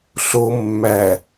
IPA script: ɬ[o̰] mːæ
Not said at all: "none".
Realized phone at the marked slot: o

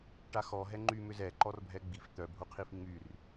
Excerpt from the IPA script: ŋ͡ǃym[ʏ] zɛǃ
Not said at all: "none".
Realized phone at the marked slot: ʏ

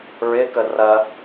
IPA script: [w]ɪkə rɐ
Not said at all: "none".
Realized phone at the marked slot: ɹ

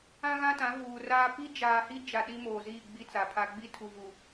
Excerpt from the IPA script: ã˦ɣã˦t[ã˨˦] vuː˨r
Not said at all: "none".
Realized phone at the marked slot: ã˨˦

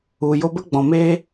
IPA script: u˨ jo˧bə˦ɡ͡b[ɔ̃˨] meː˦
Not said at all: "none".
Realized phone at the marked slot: ɔ̃˨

